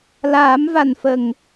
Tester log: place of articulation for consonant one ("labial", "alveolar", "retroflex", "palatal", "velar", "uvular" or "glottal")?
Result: alveolar